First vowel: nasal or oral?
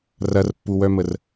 oral